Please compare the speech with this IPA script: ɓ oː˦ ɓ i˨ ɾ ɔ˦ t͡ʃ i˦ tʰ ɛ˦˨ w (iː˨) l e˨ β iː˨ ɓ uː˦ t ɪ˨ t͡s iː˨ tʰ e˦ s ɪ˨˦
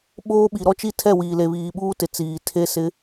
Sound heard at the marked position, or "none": iː˨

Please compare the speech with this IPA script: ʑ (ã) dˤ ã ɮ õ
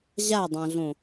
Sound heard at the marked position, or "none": a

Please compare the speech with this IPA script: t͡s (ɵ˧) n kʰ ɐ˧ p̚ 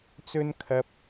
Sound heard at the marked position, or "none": ɵ˥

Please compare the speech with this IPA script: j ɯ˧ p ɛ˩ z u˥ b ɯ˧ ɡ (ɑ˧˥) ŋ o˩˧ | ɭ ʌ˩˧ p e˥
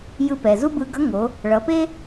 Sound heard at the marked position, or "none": ʌ˧˥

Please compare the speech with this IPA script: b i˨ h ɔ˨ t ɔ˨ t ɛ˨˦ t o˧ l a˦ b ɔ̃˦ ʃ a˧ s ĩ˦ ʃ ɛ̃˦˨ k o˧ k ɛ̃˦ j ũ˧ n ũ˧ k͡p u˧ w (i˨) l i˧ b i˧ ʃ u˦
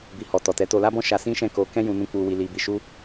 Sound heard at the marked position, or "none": i˧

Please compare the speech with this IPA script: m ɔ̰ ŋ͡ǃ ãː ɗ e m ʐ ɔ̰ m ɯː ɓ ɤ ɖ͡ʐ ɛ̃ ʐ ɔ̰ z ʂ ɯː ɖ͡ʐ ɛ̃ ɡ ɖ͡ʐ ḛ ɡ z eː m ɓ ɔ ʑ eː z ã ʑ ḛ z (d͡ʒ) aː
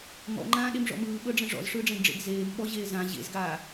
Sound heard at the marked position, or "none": ɡ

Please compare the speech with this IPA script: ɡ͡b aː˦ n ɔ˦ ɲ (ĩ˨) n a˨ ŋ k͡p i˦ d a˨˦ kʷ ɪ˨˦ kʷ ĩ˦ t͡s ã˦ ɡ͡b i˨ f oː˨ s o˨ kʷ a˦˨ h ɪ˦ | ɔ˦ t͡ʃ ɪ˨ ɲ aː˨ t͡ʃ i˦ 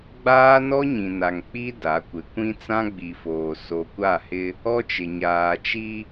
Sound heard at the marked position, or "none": ĩ˨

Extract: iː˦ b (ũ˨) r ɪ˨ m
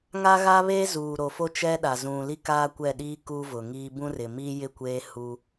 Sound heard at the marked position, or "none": ũ˦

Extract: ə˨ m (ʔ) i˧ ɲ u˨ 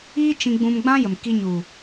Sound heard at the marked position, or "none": k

